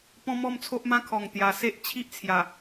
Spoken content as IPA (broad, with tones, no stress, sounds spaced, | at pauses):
p ɔ̃˦ m ɔ˥˧ m t͡sʰ o˦ ʔ m ã˦ kʰ ɔ˨˩ ŋ t̪ j a˨˩ s e˦ ʔ t͡ɕʰ i˦ ʔ t͡sʰ j a˨˩